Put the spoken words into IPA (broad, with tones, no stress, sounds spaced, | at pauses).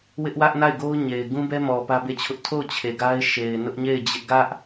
w ɪ˦ ʔ w ä˦ ʔ n a˦˨ ɪ̯ ɡ o˦ ʊ̯ ɲ e˨ ɪ̯ ɡ ũ˦ b ɛ˦ m ɔ˨ p ä˦ b e˦˨ t͡ɕʰ ʊ˦ ʔ tʰ o˦˨ ʊ̯ t͡ɕʰ e˨ ɡ a˦ ɪ̯ ʃ e˨ ɪ̯ n ʊ˦ ʔ ɲ e˦˨ ɪ̯ d͡ʑ ɪ˦ ʔ ɡ ä˦ ʔ